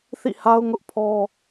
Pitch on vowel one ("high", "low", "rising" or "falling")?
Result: falling